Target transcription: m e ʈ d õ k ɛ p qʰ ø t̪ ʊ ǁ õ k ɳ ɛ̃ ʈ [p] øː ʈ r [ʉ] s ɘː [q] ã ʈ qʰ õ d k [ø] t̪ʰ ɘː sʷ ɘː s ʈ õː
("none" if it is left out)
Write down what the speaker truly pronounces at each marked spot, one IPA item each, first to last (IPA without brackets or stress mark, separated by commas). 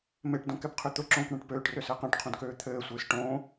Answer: p, ø, q, øː